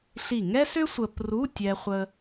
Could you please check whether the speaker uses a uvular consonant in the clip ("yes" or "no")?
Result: yes